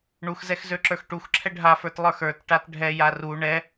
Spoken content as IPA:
ɳ u x z ɛ x z ø ǁ ə˞ x ʈ u x ǁʰ ɛ ɖʱ a f ə˞ t lˠ ə˞ x ə˞ t ʈ a t ɖʱ ɛ j a r u ɳ ɛ

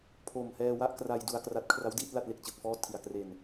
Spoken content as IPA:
pʰ oː˨˩ m h ɛː˧ w a˥˩ ʔ k r a˧ j d u˧ a̯ k r a˦˥ t̚ kʰ r a˦˥ w d iː˥˩ t̚ l a˥˩ t̚ l e˥˩ k̚ t͡ɕ ɯː˨˩ k̚ f ɔː˥˩ tʰ i˨˩ a̯ k r e˧ n

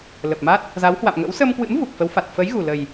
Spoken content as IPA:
l ə˨˩ p̚ m a˦˥ t̚ | z a˨˦ w h w a̰˧˨ m ŋ ə̰˧˥ w s ə˧ m k w ɨ̰˧˥ m v u˨˩ k̚ f ə˨˦ w f a˨˩ t̚ f ə˨˦ j ɣ u˨˩ l ə˨˩ j

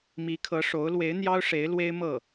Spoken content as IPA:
m i˧˥ kʰ ɤ˧˥ ʂ o˧˥ ʊ̯ l w e˧˥ ɪ̯ n̪ j ɑ˥ ʊ̯ ʂ e˧˥ ɪ̯ l w e˥ ɪ̯ m ɤ˥˩

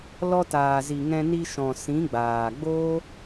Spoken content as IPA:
l ɔ˧ t aː˨ z i˨ ŋ ɛ̃˧ n i˧ ʃ ɔ̃˨ s ĩ˨˦ ɡ͡b aː˨ ɡ͡b oː˦

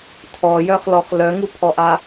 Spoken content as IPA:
tʰ ɔ j œ χ l ɔ χ l œ ŋ u pʰ ɔ ʔ a

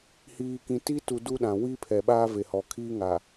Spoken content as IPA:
h iː˨ k ĩ˨ t i˦ t u˨ d u˦ ɗ ã˨ w iː˦ pʰ ɛ˨ ɓ aː˦ v e˨ h ɔ˨ kʰ iː˦ ŋ a˨

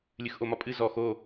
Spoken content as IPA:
lʲ ɨ x ʔ o m ɒ pʼ ɨ z ɔ x o

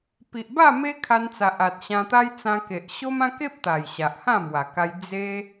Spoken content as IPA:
p i˨ ʔ b a˥˧ m e˦ kʰ a˧ n t͡s a˨ ʔ a˨ t̚ ɕ ã˧ t̪ a˦ j t͡s ã˧ k e˨ ʔ ɕ o˦ m ã˦ k e˦ p̚ t̪ a˨˩ j ɕ a˨ ʔ h ã˥˧ m w a˨˩ k a˧ j d͡z e˧

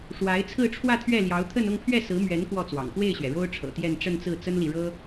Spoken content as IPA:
ʂ w a˧˥ ɪ̯ t͡sʰ ɹ̩˥˧ ʈ͡ʂʰ w ä˥˧ t̪ʰ ɥ ɛ˥˩ l j ɑ˧˥ ʊ̯ t̪ʰ ə˥˧ n ʊ˥˧ ŋ pʰ ɥ ɛ˥˩ s ɹ̩˧˥ m ɥ ɛ˧˥ n k w ɔ˥˩ t͡s w ɑ̰˨˩ ŋ p w e˥˩ ɪ̯ ɕ ɥ ɛ˩ ɻ o˥ ʊ̯ ʈ͡ʂʰ ɤ̰˨˩ t̪ j ɛ˥˧ n ʈ͡ʂ ə˥˧ n t͡s ɹ̩˥˩ t͡s ə˥ n l i˨ ɻ ɤ˥

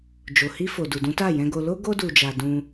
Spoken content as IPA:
d͡ʒ o˨ h i˧ f o˨ d u˨ d ũ˨˦ t a˦˨ j ɛ̃˧ ɡ o˧ l o˦ ɡ o˧ d u˨ d͡ʒ a˨ d ũ˧

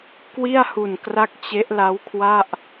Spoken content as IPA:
k w i˥˩ a̯ h u˨˩ n k r a˦˥ k̚ t͡ɕ e˦˥ ʔ l a˦˥ w kʰ w a˥˩ ʔ

